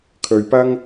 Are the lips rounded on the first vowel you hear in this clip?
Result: yes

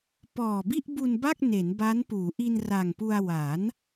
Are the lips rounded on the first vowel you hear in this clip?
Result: yes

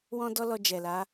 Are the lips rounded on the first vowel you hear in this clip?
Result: yes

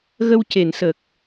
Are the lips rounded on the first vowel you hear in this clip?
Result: no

